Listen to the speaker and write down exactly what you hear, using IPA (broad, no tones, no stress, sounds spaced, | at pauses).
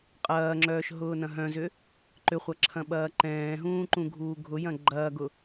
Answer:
qʼ ɐː ŋ͡ǁ œː ʃ ɦ ʊː n ɐ̃ ɦ œ̃ z ʏ | ǃ ʏ χʷ ɐ ǁʰ ɐ̃ ɓ ɐː ǃ ɛ̃ː ɦ ũː ǃ ũ ɡʱ uː ɡʱ ʊ j ɐ̃ ɡ͡ǃ ɐː ɡ ʊ